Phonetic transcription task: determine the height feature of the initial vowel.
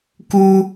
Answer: high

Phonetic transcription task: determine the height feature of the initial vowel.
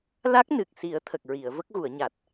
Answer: low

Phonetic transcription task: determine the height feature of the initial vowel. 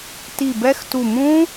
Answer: high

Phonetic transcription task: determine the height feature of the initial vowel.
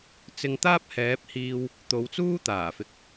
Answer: high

